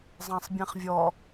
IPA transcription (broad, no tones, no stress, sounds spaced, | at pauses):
zˤ ã sˤ bʲ ẽ χ vʲ ɔ